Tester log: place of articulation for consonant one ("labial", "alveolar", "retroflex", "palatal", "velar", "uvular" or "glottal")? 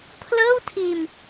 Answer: labial